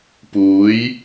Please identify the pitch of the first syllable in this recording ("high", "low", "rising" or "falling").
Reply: rising